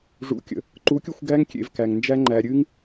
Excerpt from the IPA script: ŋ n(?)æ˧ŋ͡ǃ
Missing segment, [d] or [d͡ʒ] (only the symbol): d͡ʒ